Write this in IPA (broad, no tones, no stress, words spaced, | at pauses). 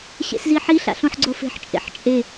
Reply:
ɕḛsziħi ɬa̰ɬõħɡ͡ǀofe̤ħ t͡ʃʼḛħt͡ʃʼe